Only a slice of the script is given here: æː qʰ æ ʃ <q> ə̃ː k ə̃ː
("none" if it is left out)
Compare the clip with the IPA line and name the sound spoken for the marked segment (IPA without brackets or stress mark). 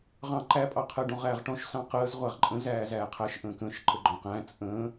ʔ